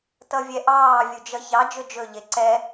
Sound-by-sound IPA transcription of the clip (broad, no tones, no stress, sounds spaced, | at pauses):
t ʌ vʲ ɛ ʔ ɑː vʲ u d͡ʒ ʌ ç ɑ d͡ʒ ɵ d͡ʒ ɵ ʎ e ǀ ɛ